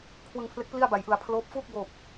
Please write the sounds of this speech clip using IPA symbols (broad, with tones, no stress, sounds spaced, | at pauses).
kʰ w ɯ˧ ŋ pʰ l e˦˥ k̚ p l i˥˩ a̯ b a˩˦ j ʔ ɯ˩˦ a̯ pʰ l oː˦˥ p̚ f uː˥˩ k̚ b oː˨˩ p̚